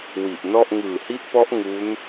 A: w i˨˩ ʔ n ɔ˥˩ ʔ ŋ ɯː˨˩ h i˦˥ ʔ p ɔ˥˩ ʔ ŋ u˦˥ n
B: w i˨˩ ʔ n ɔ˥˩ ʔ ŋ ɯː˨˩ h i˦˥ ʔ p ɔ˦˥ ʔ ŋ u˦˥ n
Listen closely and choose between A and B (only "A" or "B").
B